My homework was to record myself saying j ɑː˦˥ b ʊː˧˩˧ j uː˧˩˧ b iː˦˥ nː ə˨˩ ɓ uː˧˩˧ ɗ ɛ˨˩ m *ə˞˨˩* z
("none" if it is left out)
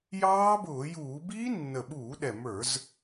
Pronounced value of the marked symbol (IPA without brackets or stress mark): ə˞˧˩˧